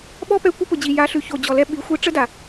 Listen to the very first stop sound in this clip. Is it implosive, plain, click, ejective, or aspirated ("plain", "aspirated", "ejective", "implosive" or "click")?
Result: implosive